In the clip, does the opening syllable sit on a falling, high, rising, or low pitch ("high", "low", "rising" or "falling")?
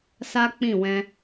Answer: high